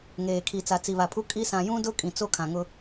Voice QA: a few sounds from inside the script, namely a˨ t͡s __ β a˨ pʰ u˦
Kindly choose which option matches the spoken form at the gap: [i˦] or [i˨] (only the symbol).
i˨